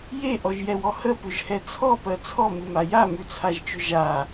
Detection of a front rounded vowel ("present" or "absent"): present